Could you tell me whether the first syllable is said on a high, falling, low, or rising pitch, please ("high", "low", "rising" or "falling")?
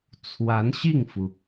rising